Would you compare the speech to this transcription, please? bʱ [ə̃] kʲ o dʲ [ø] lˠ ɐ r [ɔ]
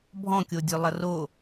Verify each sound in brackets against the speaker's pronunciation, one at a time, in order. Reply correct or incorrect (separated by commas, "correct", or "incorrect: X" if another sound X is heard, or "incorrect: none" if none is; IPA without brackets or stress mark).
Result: incorrect: ɔ̃, correct, incorrect: o